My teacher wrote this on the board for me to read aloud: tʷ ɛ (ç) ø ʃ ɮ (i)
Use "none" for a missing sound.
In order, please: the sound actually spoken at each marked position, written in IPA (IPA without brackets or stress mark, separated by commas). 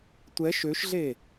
ʃ, e